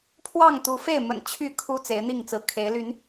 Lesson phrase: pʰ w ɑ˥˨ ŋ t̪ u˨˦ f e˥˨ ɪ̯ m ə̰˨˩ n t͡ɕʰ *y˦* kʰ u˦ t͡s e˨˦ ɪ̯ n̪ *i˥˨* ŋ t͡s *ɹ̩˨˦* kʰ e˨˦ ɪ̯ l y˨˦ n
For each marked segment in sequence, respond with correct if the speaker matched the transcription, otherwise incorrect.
incorrect: y˥˨, correct, correct

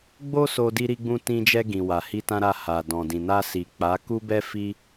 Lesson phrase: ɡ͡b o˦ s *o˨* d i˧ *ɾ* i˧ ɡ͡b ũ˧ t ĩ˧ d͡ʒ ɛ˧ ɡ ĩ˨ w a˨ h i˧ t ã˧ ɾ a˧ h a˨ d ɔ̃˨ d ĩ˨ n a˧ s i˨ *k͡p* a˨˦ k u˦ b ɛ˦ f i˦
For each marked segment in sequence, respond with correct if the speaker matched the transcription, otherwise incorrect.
incorrect: o˧, correct, correct

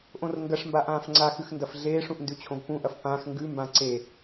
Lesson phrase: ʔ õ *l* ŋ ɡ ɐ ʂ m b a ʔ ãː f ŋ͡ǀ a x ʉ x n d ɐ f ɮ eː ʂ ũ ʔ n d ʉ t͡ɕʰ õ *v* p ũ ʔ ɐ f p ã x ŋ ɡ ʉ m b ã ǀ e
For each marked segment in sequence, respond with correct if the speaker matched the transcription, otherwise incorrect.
incorrect: r, correct

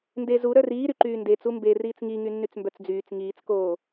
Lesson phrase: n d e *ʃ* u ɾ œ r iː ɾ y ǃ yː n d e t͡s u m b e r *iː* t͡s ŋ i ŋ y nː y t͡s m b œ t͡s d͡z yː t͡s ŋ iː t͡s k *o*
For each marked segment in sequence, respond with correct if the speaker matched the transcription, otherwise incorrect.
incorrect: z, correct, incorrect: oː

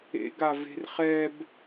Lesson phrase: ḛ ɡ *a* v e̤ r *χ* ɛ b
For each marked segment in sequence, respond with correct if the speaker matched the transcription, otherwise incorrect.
correct, correct

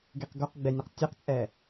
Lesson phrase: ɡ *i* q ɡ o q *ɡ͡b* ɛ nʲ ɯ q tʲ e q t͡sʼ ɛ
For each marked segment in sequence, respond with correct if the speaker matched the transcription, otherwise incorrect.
incorrect: e, correct

